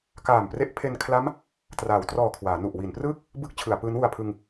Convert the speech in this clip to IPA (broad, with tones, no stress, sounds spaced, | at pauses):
k aː˨˩ m p r e˦˥ ʔ pʰ e˧ n kʰ l a˦˥ m | t r aː˩˦ w t r ɔː˨˩ kʰ w aː˩˦ n u˨˩ ʔ w i˩˦ n p r ɯː˥˩ k̚ | b ɯ˦˥ k̚ t͡ɕʰ ɯ˩˦ a̯ p ɯː˦˥ n w u˧ a̯ pʰ ɯ˧ ŋ